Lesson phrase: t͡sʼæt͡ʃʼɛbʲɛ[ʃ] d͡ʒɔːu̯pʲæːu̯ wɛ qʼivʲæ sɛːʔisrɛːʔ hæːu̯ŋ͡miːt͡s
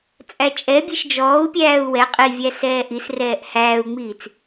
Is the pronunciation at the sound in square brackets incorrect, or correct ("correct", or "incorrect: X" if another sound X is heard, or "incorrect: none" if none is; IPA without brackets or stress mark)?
correct